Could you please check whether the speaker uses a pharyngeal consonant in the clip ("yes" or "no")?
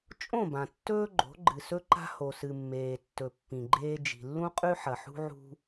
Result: yes